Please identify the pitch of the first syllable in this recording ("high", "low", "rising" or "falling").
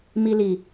high